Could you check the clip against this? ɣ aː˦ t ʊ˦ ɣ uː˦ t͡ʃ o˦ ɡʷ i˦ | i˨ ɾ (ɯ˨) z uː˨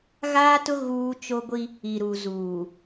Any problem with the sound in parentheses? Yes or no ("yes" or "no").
yes